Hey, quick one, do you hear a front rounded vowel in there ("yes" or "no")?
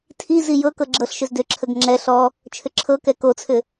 yes